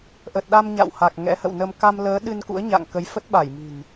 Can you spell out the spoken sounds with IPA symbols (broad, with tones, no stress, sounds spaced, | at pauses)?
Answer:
ʔ ə˨˩ t̚ ɗ a˧ m ɲ a̰˧˨ w h a˨˩ k̚ ŋ ɛ̰˧˥ h ə̰˧˨ w n ə˧ m k a˧ m l əː˨˦ ɗ ɨ˧ n k ṵ˧˥ ə̯ ɲ a̰˧˨ ŋ k ə˨˦ j f ə˦˥ t̚ ɓ a˧˩ j m i̤˨˩ n